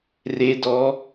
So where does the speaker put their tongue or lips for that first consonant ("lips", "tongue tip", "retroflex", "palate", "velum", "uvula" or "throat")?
tongue tip